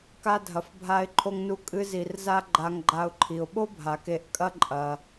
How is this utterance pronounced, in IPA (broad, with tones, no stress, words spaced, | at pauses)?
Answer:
ka˥dʱɐ˨fbʱa˦ɪ̯ǃʰo˦ŋ nu˦kʼɨ˦ zi˨rza˥ ɡ͡ǃa˨ŋɡ͡ǃa˨ʊ̯ǃʰi˩ʊ̯ɓo˥ bʱa˩ke˨ʔkʼɐ˥ ǃʼɐ˩